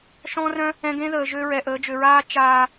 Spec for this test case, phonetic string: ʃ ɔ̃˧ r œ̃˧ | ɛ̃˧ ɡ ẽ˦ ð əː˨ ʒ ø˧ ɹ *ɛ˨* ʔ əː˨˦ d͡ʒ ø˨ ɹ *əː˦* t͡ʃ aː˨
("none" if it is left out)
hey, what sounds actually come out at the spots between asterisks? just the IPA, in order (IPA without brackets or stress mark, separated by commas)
ɛ˨, aː˦